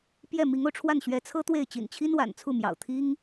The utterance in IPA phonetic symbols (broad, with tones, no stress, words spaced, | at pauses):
pjɛ˥˩ mi˧˥ŋo˧ʊ̯ʈ͡ʂʰwa˥˩n ɕɥɛ˧˥t͡sʰɤ˥t̪we˥˩ɪ̯ t͡ɕḭ˨˩n t͡ɕʰi˥nwa̰˨˩nt͡sʰu˥˩mjɑ̰˨˩ʊ̯ t̪ʰi˥ŋ